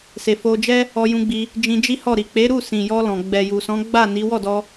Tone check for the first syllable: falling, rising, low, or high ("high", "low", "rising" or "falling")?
low